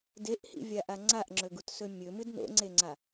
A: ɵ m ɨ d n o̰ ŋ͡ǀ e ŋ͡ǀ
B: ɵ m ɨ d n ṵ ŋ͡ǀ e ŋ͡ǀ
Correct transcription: A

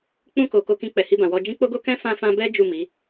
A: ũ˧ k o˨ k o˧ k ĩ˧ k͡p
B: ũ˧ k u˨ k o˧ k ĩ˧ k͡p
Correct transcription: A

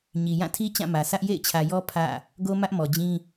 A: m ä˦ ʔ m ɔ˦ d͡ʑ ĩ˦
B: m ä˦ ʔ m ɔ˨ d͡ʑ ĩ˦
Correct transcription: B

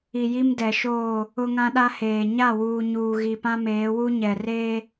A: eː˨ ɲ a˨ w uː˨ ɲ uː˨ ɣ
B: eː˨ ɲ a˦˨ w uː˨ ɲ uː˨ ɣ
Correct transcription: B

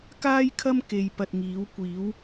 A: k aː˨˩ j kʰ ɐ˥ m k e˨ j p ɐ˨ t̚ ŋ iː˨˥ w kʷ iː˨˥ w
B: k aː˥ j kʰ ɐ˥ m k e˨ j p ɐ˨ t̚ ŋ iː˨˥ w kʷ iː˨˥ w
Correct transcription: B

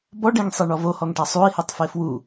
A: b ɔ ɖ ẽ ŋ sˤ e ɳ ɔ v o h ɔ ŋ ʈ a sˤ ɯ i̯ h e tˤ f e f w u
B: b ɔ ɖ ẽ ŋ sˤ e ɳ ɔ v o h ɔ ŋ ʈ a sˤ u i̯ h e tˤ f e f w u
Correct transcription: B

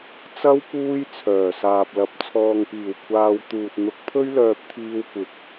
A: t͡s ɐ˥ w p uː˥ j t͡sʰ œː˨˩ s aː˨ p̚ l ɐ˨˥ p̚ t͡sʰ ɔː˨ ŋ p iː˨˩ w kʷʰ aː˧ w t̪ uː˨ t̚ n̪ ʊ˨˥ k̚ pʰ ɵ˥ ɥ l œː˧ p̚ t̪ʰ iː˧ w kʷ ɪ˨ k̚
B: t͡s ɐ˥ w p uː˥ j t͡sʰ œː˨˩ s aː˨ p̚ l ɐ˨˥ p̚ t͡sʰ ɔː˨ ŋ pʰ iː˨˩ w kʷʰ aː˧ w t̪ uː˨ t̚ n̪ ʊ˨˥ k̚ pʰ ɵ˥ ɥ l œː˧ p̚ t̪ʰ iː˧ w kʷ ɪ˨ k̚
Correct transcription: A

